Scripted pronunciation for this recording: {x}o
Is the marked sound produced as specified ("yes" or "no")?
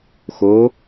yes